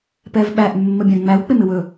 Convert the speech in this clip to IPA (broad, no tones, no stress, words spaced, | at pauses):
pɛvɓæʔ mːəbʲãŋ͡mæw k͡pɪmɪwɵ